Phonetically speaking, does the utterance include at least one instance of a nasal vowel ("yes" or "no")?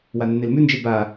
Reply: no